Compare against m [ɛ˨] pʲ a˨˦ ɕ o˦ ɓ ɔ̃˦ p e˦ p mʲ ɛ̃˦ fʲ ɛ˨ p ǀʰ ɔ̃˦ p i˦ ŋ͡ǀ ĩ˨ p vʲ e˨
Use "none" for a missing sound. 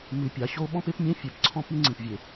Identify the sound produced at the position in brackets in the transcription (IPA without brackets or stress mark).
ɨ˨